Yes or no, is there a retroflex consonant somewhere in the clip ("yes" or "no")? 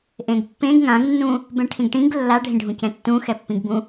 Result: yes